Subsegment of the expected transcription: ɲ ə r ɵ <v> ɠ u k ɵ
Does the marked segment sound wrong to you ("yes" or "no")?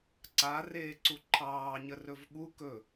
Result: no